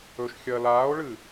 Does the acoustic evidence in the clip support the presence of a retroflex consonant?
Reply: yes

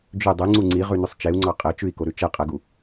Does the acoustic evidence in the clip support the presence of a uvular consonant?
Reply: yes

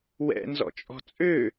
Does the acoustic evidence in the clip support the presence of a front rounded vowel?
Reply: yes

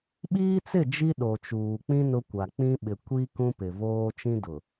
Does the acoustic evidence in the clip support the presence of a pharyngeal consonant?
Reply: no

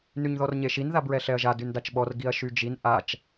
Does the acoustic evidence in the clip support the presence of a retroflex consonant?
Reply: no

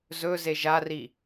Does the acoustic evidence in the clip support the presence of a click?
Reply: no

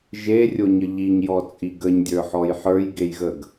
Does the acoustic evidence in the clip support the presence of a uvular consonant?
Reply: no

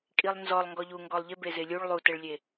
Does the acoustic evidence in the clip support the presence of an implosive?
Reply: no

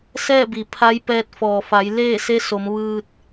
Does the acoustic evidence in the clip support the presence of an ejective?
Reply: no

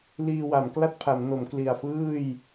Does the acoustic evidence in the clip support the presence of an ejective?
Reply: no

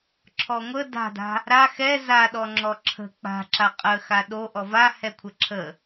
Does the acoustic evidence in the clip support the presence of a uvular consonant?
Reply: yes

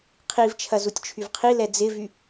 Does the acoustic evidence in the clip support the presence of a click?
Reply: no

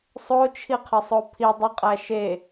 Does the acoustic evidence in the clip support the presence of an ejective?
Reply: yes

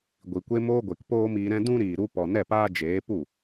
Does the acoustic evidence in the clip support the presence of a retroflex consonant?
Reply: no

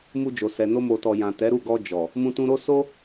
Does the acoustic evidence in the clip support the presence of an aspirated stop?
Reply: no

